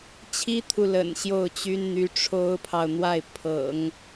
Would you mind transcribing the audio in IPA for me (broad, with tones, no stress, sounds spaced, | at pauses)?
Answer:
t͡ɕʰ i˥ t̪ʰ u˨ l ə̰˨˩ n ɕ j o˥˩ ʊ̯ t͡ɕ y˥ n n̪ y˧˥ ʈ͡ʂʰ o˥ ʊ̯ pʰ ɑ˨ ʊ̯ n̪ w a˥˩ ɪ̯ pʰ ɤ̰˨˩˦ ŋ